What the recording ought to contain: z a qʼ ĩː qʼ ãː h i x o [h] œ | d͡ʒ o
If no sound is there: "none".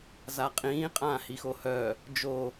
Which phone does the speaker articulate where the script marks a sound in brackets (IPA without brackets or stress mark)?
h